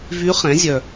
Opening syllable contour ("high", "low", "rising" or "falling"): rising